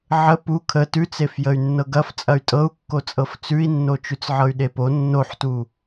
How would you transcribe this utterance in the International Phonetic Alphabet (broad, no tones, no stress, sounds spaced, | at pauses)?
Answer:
ʕ ə p u kʰ ə t ʉ t͡s e f j ə y̯ nː ɤ ɡ ɐ f t͡sʼ ɐ y̯ tʼ ɤ u̯ kː o t͡sʼ ɤ f t͡s ʉ i̯ nː o t͡ʃ ʉ t͡s ʕ ɤ y̯ ɗ e p o nː o ħ t u